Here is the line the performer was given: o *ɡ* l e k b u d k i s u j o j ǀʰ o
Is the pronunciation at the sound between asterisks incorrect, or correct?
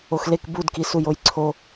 incorrect